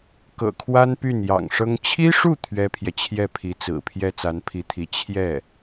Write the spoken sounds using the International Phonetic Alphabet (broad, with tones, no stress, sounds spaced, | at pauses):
k ɤ̰˨˩ kʰ w a˥ n p y˥˩ n j ɑ̰˨˩ ŋ ʂ ɤ˥ ŋ t͡ɕʰ i˥ ʂ u˥˩ t̪ʰ ɥ ɛ˥ pʰ j ɛ˨ t͡ɕʰ j ɛ˥˩ pʰ i˧˥ t͡s ɹ̩˨˩ pʰ j ɛ˥ t͡s a˧˥ n pʰ i˧˥ t̪ʰ i˧˥ t͡ɕʰ j ɛ˥˩